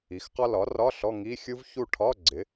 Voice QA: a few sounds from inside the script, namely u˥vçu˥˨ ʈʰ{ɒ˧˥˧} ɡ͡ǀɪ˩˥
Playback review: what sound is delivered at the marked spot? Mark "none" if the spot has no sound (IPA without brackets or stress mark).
ɒ˧˥˧